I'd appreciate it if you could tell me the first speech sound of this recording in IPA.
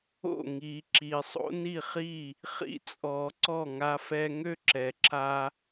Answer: o̰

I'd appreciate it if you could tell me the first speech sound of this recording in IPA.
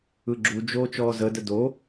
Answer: ɯ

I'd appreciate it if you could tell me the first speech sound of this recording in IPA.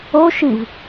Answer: o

